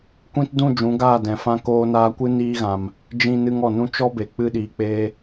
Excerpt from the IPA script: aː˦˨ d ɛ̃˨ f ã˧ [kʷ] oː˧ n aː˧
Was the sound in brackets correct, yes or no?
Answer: no